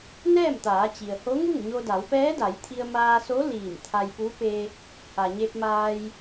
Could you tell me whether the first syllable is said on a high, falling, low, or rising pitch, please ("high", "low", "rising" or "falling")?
falling